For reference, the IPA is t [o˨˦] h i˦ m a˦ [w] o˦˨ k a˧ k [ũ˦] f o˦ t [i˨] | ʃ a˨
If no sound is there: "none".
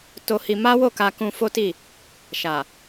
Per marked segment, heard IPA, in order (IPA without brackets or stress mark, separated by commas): o˦, w, ũ˧, i˦˨